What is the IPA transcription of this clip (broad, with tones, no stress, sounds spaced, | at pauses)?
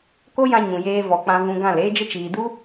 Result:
k o˦ j ã˧ ɲ ũ˨ j eː˧ v ɔ˨ k͡p ã˧ v ũ˧ ɡ ã˦˨ l eː˦ d͡ʒ ə˦ t͡ʃ iː˨ d u˦